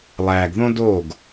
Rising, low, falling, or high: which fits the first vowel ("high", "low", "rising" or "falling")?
low